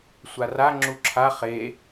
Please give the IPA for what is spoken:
sʷara ŋ͡ǁuǁʰa χe

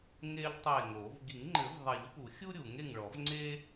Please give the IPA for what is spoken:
ŋe˥ʎ tˤe˦˨ŋo˨˩˦v ɡi˨˩˦ŋŋ͡ǃɘ˨˩˦vðˤɛ˨˩˦ʎ pu˨˩˦xʲu˥ɾʲu˨˩˦ŋ e˦˨ŋɭɔ˨˩˦v ŋ͡ǀe˥

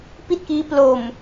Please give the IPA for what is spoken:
pi˥˩t̚kiː˦˥ plo˨˩m

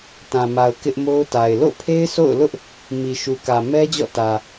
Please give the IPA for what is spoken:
tã˨ma˨ʊ̯ kɪ˦ʔmo˦ʊ̯ta˨ɪ̯ lo̰˦˨ pʰe˦ɪ̯so̰˦˨ʊ̯lʊ˦ʔ | mi˨ʃu˨kä˨ mɛ˦d͡ʑɔ̰˦˨tä˨

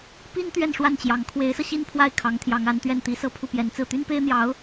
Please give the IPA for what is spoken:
pi˥n t̪ɥɛ˥˧nʂwa˥˩nt͡ɕjɑ˧˥ŋ kʰwe˧˥ɪ̯sɤ˧ ɕi˥˧n pʰwa˥˩ɪ̯ kʰɑ˧˥ŋt̪ʰjɑ˧˥ŋa˧˥nt̪ɥɛ˥˩n t̪i˧˥sɤ˥˧ pʰu˥˩pjɛ˧˥nt͡sɹ̩˥˩ t̪y˥npe˥ɪ̯n̪jɑ˧˥ʊ̯

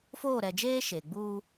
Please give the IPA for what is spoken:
foː˦˨ɾɛ˨d͡ʒeː˦ ʃe˨ɡ͡buː˦

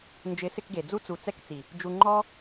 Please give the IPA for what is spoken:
nd͡ʒɪ˨˦sɪ˧kɡe˨ d͡zu˧t͡su˨t͡sɛ˧kt͡si˨ | d͡ʒu˨ŋ͡ǃɔ˧

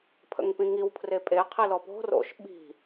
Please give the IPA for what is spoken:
pʰə̰ŋpĩŋiw pʰrepʼe qʰilɔpo̤ ro̰ʃ ɓi̤

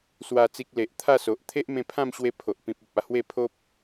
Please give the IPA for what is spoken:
swa˨˩t͡si˨k̚ le˨ʔt̪ʰa˥˧so˨ʔ t̪ʰe˦ʔmẽ˧ pʰã˥˧mɕwe˧ pʰo˨ʔpĩ˨p̚ o˨p̚a˥˧hwe˥˧ pʰo˦p̚

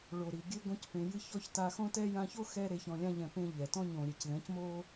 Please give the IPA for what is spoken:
ɭo˨ɾi˨ ɡʲɘ˦ ɡõ˦cpẽ˧jɨ˦ çɔ˦ç ta˧xõ˦tɛ˦ jã˧ço˦xɛ˧ ɾe˧çɔ̃˧lʲã˦ʎɛ̃˧ pẽ˧ ʎɛ˨tɔ̃˦ ɲõ˨ɾʲe˨cðɛ̃˨˦cmo˦

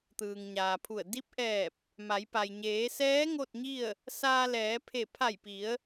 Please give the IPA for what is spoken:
t̪ɯː˩ŋɲaː˩pʰu˧˩ə̯ di˧p̚ʔɛː˧˩p̚ | ma˩˧jpa˩j ɲeː˩˧sɛː˧˥ ŋo˥˨t̚ɲi˥˨ə̯ | saː˧lɛː˩˧ pʰe˧˩ pʰa˧˩jpi˩˧ə̯

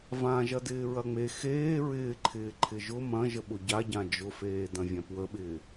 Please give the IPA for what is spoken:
vãʒɐdɪː ɹɐŋ͡me xeː ɹɪːǃʰɪː ǃʰɪʒʊ mɐ̃ʒəɓʊ ɟaɟã d͡ʒʊfeː dɐ̃vʲãpwəɓɪː

